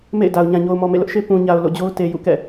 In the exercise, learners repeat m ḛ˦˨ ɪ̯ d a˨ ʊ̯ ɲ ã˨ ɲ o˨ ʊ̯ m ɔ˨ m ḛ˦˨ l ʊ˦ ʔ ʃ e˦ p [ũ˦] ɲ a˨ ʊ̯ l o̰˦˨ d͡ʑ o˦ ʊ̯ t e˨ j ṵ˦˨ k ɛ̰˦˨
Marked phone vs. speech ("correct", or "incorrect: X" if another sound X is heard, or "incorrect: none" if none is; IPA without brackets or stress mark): incorrect: ũ˨